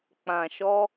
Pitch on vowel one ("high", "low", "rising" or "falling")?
low